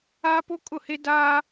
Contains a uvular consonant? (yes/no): no